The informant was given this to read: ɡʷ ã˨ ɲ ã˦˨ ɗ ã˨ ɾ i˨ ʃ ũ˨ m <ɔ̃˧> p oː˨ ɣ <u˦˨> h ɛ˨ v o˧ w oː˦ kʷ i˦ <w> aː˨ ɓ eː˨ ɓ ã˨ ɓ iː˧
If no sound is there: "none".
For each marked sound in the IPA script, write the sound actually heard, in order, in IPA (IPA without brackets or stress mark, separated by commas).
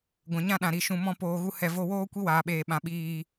ɔ̃˧, u˧, w